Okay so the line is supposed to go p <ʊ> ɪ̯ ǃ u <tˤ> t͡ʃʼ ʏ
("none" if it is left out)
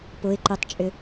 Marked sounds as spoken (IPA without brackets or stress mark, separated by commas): ʊ, tˤ